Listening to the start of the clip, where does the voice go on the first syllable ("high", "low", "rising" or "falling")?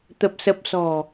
low